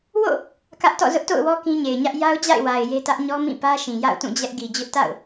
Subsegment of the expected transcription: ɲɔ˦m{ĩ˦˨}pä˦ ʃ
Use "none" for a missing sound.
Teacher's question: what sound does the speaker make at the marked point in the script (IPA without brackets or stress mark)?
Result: ĩ˦˨